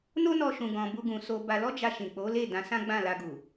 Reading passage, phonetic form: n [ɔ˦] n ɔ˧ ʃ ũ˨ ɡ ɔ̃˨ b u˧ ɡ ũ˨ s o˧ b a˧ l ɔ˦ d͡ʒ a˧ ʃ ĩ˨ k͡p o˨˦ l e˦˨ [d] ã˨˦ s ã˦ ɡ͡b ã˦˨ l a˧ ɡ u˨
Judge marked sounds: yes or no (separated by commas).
no, yes